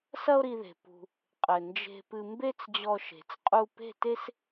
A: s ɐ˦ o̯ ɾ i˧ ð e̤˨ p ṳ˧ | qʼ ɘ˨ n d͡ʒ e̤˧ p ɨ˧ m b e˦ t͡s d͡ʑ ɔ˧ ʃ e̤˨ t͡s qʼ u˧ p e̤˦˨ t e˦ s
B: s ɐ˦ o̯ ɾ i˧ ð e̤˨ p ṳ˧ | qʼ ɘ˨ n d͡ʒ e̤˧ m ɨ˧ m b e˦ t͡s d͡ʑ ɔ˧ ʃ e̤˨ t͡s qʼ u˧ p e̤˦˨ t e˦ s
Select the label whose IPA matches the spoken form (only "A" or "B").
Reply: A